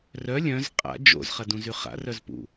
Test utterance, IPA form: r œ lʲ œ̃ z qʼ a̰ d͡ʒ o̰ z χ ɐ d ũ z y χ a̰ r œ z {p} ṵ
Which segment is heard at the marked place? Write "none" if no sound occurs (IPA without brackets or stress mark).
p